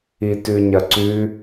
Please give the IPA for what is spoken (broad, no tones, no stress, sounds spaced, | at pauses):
i t ʉ ɲ ɐ ǀ ʉ